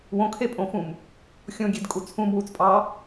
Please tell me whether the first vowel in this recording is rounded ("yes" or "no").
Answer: yes